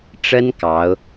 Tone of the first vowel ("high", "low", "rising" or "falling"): high